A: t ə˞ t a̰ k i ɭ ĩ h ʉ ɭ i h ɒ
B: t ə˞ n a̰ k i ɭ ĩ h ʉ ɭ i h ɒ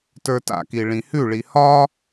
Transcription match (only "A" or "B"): A